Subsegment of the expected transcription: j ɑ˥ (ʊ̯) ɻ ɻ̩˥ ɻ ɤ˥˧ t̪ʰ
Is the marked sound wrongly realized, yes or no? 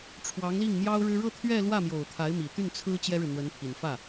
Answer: no